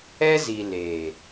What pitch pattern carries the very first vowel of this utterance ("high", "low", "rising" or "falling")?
high